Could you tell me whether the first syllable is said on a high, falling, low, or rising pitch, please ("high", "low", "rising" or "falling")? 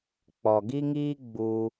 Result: low